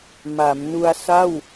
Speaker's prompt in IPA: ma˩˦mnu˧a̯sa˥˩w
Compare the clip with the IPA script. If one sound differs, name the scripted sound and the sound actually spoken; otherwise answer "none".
none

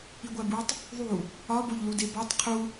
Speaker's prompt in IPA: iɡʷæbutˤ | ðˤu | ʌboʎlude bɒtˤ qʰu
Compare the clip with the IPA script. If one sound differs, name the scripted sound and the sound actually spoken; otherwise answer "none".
ʌ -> ɒ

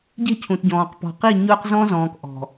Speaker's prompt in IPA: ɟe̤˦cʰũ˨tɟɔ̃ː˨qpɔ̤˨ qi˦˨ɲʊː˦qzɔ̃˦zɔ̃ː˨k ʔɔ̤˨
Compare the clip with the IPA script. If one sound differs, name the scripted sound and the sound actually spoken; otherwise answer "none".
none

